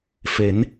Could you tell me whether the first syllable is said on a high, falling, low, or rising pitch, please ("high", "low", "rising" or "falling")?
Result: rising